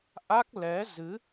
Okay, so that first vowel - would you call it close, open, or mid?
open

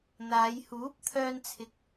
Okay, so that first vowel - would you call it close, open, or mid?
open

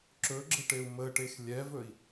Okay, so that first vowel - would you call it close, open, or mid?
mid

